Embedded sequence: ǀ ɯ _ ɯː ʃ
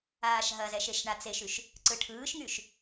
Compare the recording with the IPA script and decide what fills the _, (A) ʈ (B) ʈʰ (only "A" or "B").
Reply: B